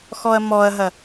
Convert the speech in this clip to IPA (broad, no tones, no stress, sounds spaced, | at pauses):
x ɔ ɐ̯ m ɔ ɐ̯ ɦ ɐ